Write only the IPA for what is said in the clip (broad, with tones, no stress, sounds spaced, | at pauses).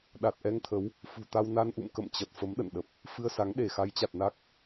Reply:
ɗ a˨˩ t̚ ʔ ɛ˧ ŋ t̪ʰ ə˨˦ w | f ṳ˨˩ t̪ a˧ w n a˧ n ʔ ṵ˧˨ m k ə̰˧˨ m t͡ɕ ə˨˩ t̚ f ə˨˦ m ɗ ə̰˧˨ n ɗ ə˨˩ p̚ | f ɨ˧ ə̯ s a˨˦ ŋ ɗ e˧˩ x a˨˦ j t͡ɕ a˨˩ t̚ n a˦˥ k̚